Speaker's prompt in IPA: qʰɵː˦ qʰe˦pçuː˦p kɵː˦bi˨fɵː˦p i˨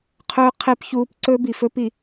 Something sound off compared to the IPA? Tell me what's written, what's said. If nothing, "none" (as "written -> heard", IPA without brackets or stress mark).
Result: k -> ǀ